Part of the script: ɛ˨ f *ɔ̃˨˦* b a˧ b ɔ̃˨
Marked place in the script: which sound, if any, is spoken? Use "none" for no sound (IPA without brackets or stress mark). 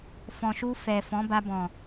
ɔ̃˨˦